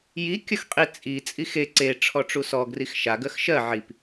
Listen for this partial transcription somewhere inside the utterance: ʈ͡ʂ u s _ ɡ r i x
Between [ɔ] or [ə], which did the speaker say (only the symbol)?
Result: ɔ